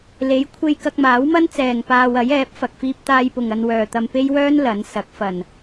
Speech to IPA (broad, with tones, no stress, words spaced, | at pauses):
le˨˥j kʷʰe˧jkɐ˧k̚maː˨˥wmɐ˥n t͡sɛː˨ŋpaː˧w ɐ˨˥jɛː˨˥p̚ fɐ˨k̚fiː˧p̚t̪aː˧jpʊ˨ŋ ɐ˧nwœː˨t̪ɐ˧m pe˥jwœː˥n lɐ˨˥n sɐ˨˥k̚fɐ˨n